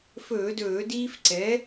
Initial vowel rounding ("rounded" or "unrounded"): rounded